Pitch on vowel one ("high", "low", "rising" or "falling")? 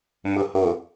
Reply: low